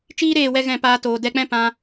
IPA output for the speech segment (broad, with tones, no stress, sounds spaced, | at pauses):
t͡ʃ iː˦ ɾ eː˦˨ w ɛ˧ ɣ ɛ̃˦˨ p aː˧ t oː˨ d ɛ˧ k͡p ɛ̃˦ p ã˧